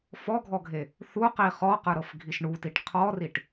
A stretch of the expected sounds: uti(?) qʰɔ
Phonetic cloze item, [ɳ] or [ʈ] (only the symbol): ʈ